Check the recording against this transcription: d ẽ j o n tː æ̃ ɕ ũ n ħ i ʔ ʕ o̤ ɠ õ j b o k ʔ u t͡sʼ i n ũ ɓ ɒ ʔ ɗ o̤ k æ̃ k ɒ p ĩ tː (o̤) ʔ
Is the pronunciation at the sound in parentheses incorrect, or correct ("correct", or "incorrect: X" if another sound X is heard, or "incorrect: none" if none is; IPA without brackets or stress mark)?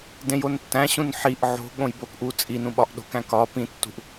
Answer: incorrect: ṳ